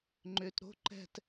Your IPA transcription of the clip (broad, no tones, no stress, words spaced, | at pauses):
ŋ͡ǃʏːtɾo̤ ǃɛ̤t